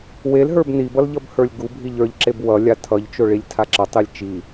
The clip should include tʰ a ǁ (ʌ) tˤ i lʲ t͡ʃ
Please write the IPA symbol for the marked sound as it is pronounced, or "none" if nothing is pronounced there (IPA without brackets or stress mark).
ʌ